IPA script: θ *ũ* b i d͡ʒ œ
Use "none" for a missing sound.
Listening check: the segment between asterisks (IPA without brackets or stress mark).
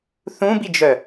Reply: ũ